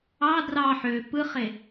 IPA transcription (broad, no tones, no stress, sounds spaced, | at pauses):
ɑ d r ɑ ħ ø p ɯ χ e